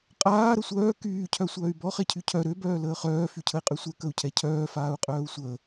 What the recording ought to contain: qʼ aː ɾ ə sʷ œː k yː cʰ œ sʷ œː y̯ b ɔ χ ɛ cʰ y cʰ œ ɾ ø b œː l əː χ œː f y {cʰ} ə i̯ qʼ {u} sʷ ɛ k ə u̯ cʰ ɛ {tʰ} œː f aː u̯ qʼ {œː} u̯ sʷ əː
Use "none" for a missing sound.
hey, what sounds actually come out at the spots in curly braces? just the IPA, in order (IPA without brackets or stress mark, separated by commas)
cʰ, y, cʰ, œː